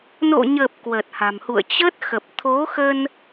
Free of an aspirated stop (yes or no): no